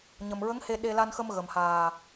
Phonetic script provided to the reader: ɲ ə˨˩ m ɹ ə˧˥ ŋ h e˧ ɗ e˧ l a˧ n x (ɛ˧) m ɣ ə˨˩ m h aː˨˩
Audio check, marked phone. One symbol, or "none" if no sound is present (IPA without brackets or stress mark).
ə˧